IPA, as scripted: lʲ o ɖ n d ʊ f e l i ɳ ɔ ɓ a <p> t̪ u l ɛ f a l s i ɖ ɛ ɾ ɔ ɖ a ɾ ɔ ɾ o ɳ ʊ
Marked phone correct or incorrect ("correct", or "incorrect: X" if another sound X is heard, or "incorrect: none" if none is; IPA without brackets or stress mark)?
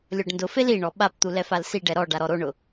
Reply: correct